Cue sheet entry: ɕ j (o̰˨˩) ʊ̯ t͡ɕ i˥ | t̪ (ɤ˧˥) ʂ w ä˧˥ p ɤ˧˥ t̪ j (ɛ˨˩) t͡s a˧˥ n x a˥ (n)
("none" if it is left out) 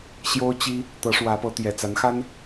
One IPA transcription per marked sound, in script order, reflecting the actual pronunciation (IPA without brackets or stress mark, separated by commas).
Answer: o˥, ɤ˧˥, ɛ˨˩, n